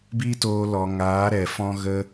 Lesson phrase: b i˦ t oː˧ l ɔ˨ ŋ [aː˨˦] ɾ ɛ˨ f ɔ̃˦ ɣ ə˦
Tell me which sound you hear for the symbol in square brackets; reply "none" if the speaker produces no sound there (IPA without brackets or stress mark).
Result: aː˨˦